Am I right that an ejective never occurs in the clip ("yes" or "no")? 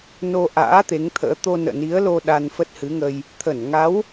yes